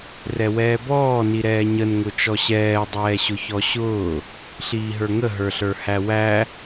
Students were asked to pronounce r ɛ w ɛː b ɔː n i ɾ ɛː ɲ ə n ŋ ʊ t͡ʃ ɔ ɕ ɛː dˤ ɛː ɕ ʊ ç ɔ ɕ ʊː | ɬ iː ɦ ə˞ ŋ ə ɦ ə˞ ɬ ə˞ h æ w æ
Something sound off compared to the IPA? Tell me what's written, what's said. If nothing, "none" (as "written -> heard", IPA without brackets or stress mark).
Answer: none